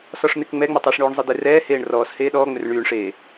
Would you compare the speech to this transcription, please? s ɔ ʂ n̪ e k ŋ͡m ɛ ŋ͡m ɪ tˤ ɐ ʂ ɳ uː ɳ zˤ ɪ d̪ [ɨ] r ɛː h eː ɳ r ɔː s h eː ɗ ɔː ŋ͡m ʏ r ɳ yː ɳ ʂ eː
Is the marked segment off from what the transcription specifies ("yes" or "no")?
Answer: yes